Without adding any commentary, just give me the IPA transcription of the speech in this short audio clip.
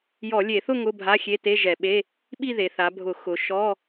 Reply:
j ɔ˧˩˧ lʲ e˧˩˧ θ ʊ˥˧ ŋ ʊ˧˥˧ bʱ a˧˥˧ xʲ e˧˥˧ t e˧˥˧ ʒ ɛ˧˩˧ ɓ e˧˥˧ | ɓ i˥˧ ð e˩˧ θ a˩˧ bʱ ʊ˧˩˧ x ʊ˩˧ ʃ ɔ˧˥˧

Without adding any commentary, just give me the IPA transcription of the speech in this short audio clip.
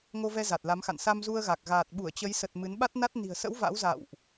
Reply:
ŋ o˧ v ɛ˧ z a˨˩ t̚ l a˨˦ m x a̰˧˨ n s a˧ m z u˧ ə̯ ɣ a˨˩ k̚ ɣ aː˨˩ t̚ ɓ u˧˩ ə̯ t͡ɕ ə˨˦ j s ə˨˩ t̚ m ɨ˨˦ n ɓ a˦˥ t̚ n a˦˥ t̚ n i̤˨˩ ə̯ s ə̰˧˥ w v a̰˧˥ w z a̰˧˨ w ʔ

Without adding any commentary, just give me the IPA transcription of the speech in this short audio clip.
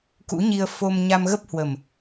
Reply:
k ṵ˧˥ ɲ i˧ ə̯ f o˧ m ɲ a˧ m ɣ ə˦˥ p̚ h w ə˨˩ m

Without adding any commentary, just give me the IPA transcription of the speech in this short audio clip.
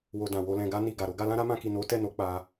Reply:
w o˨ d ã˨ w o˧ l ɛ̃˨ ɡ a˧ n i˨ ɡ a˨ ɾ o˧ ɡ a˧ l ã˦ ɾ a˦ m ã˧ k i˨ n o˨˦ t ɛ˦˨ n o˨˦ k͡p a˧

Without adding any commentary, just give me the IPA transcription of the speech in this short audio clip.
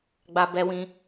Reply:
ɡ͡b a˦ b ɛ˦ w ĩ˦

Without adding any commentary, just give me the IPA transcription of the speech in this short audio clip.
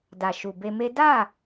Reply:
d a˨ ʃ u˨ b e˧ m e˦ d a˦˨

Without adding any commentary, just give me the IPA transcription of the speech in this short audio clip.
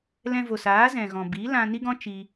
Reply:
l ɛ̃˧ v o˨ s aː˨˦ z ɛ̃˨ ɣ ɔ̃˨ b i˨˦ l ã˧ n i˦ ɡ ɔ̃˦ t͡ʃ i˧

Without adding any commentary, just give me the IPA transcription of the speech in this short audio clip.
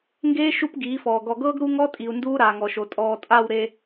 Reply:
ŋ ɡ eː˦ ʃ u˦ p ɡ iː˨˦ f ɔː˨ ɡ ɔ˨ ɡ ɤː˦ ɡ ɾ u˦ ŋ ɔː˦ tʼ i˨ u̯ n d uː˦ ɾ aː˨ ŋ ɔ˨ ʃ o˨ tʼ ɔː˨ tʼ a˦˨ w ɾ e˨

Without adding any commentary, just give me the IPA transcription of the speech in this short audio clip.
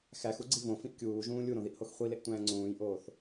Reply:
x æ x u ɡ͡ǀ i v õ f ĩ ʔ kʲ uː ʒ ũː lʲ u ɾ õ ð i ʔ h o x χʷ i l e ʔ tʷ æ̃ː ŋ͡ǀ ũː j ʔ oː θ

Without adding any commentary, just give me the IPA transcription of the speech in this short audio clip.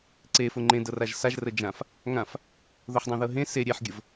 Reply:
ǀ e f ʊ ŋ͡ǃ ẽ d ɤ r a ʒ s a ʒ r ə d͡ʒ ã f | ŋ ã f | ð ʊ ħ dˤ ã ð ɤ ɦ ẽ s e ɾʲ e ħ ɡʲ ə v

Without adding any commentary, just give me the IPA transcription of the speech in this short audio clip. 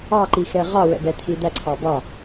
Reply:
ɑ ǃ i x ɛ ʁ ɒ ɹ ɛ̰ b ɛ t̪ʰ i d̪ æ ǀʰ ɑ b ɒ

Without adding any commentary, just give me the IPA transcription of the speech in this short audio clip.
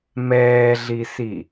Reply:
m ɛː ɮ i s i

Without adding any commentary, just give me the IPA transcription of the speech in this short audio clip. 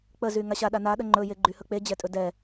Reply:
k͡p ə z y ŋ a ɕ a ɗ a n a ɗ ə ŋ͡ǃ ɵ j e ɡ͡ǃ y h ɵ k͡p e d͡ʑ ɛ tʼ ɵ d ɛ

